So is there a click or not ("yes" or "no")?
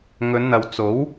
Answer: no